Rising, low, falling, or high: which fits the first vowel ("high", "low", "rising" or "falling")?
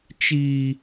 high